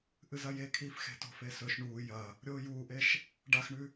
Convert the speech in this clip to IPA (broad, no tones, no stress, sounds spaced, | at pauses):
ʔ ɨ z ɐ j e kʰ iː f x e̤ t o̤ f e s ɵ ʃ ɳ uː j ɐ | ɾʲ oː j uː ʔ e ʃ | ɖ a x ɳ ʉ